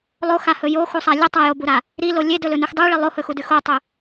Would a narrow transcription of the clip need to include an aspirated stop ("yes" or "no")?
no